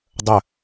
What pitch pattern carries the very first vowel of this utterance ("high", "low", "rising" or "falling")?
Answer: falling